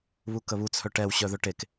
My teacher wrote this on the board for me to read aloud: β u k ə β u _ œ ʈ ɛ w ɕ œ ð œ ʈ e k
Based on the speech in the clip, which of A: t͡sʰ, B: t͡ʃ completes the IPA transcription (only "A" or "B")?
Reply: A